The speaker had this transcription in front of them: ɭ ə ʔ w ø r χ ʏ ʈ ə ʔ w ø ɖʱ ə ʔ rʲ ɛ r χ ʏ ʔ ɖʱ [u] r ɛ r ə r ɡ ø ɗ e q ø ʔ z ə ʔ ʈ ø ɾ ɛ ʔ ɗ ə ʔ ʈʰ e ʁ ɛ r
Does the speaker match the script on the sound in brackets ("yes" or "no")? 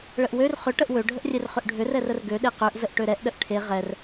no